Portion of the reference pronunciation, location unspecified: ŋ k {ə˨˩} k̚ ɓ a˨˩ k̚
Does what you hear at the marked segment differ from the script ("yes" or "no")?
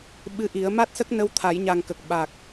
no